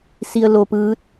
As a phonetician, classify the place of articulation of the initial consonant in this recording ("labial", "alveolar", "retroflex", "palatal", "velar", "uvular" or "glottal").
alveolar